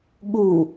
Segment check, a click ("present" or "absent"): absent